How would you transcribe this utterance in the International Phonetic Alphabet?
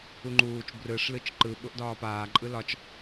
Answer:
u ŋ͡ǃ uː t͡ʃ b r ɯ ʂ l ɯ t͡ʃ ǃ ɯ ɓ ʊ ʔ d ɒː p aː ǃʼ ɯ l ɒ t͡ʃ

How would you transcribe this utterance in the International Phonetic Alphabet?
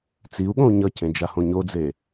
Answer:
t͡s i u̯ ɠ õ u̯ ɲ ʌ c ẽ d͡ʒ a h õ ɲ o d͡z e

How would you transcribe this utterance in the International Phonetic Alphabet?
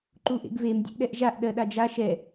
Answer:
ǃ u ʔ ḛ ɡ v e m dʲ ɛ̰ ʔ ɗ ɛ ʔ ʒ a ʔ ɗ ɜ ɗ a d͡ʒ a ʃ ɛ

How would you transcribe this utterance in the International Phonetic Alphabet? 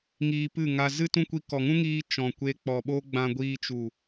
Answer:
ŋ iː˧ p ɨ˦˨ ŋ a˧ z ɨ˦ t ũ˦ kʷ i˧ k ɔ˨ ŋ ũ˦ ŋ iː˧ t͡ʃ ɔ̃˨ kʷ e˧ k͡p ɔ˨ ɓ o˦ ɡ͡b ã˧ ɡʷ iː˧ t͡ʃ u˨

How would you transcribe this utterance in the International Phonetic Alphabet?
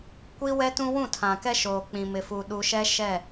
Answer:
kʷ i˦ w ɛ˦ t ũ˦ w ũ˦˨ tʰ ã˨ k ɛ˦ ʃ oː˨ k͡p ĩ˨ m ɪ˨ f u˨ ɗ u˨ ʃ ɛ˦ ʃ ɛ˦˨

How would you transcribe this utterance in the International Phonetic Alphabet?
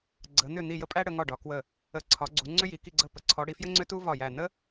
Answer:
ɡ͡ǀ ə˨˦ n̪ ʏ˦˨ n̪ i˦˨ j ə˥ pʼ æ˥ ɽ ə˨˦ ŋ ɒ˦˨ ɖ ɒ˨˦ k w ə˦˨ | ə˨˦ ǀʰ ɒ˨˦ ɡ͡ǀ u˨˦ ŋ͡ǀ ʏ˥ j i˨˦ k i˦˨ ɡ͡ǀ ə˦˨ p ə˨˦ ǀʰ ɔ˨˦ ɽ i˨˦ f j ɘ˥ ŋ͡ǀ ʏ˥ t u˥ v ɒ˦˨ j æ˦˨ n ə˥

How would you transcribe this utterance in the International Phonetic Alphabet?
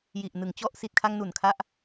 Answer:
j i˨˩ ʔ n ɯ˩˦ ŋ t͡ɕ ɔ˥˩ ʔ s i˨˩ t̚ kʰ a˧ ŋ n u˨˩ n kʰ a˦˥ ʔ

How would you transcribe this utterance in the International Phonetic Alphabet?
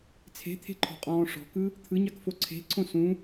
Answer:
t͡sʰ e̤ t̪ʰ e̤ ǃʰ ɔ̤ qʼ ɔ̃ː ʂ ɔ̤ k ɯ | t̪ʰ ɯ ɲ ɑ k f o ǀʰ e̤ ǀʰ õ s ũ

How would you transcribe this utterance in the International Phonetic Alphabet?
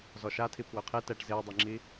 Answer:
z ɔ ʃ a tʰ i pʰ w ø qʰ e t ɛ ʈ z e ə̯ dˤ e ŋ͡ǁ i

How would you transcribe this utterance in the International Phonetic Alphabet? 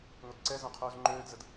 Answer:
ŋʷ ɪ d ǀ ɛ z œ̃ qʰ uː z ŋ͡ǃ øː d z ə d

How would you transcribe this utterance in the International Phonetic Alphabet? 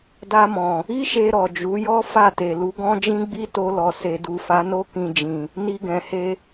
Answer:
d a˧ m ɔ̃˨ | i˦ ʃ e˧ ɾ ɔ˨ d͡ʒ u˨˦ j ɔ˦ f a˦˨ t e˨ l u˨˦ ɡ ɔ̃˦ d͡ʒ ĩ˦ ɡ͡b i˦ t o˧ l ɔ˨ s e˨ d u˨ f a˨˦ n o˦ k ĩ˧ d͡ʒ ĩ˨ | n i˧ ɡ ɛ̃˨ h e˧

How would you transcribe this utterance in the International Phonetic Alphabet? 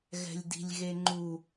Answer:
ɣ ɛ̤ lʲ d i̤ lʲ ɣ e ŋ͡ǃ u

